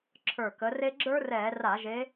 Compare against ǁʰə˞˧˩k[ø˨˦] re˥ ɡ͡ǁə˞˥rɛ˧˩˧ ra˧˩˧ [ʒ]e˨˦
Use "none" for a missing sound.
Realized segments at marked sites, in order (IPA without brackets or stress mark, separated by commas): ə˨˦, ʒ